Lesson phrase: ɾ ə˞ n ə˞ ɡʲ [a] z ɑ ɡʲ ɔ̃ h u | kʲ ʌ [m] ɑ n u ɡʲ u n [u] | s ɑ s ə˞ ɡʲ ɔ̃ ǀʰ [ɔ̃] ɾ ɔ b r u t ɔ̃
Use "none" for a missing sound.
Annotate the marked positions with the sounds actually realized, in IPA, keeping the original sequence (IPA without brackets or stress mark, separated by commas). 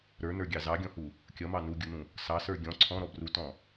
ɑ, m, ũ, ɔ̃